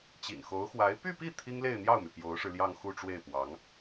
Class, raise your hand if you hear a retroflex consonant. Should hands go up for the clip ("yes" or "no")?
yes